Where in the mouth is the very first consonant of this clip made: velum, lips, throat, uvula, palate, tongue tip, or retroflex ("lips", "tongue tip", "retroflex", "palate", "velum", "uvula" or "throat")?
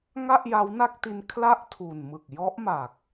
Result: velum